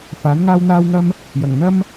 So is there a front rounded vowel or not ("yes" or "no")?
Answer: no